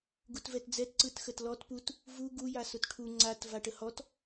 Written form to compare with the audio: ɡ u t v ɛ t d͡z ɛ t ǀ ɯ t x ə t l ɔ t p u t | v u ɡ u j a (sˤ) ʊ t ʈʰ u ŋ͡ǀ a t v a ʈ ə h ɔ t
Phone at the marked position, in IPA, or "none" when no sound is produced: s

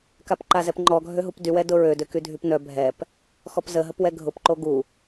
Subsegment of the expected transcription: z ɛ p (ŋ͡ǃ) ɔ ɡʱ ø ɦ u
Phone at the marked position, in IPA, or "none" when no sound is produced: ŋ͡ǃ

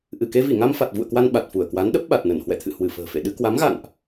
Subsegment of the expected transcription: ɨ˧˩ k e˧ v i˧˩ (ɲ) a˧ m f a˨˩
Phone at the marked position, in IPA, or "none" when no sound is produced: ŋ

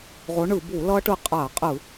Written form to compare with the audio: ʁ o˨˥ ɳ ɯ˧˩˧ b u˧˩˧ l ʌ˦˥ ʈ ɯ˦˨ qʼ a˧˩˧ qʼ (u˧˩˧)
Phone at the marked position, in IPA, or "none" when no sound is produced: ɯ˧˩˧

